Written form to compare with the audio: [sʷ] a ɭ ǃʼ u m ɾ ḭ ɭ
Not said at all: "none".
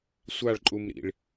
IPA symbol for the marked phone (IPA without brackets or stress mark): sʷ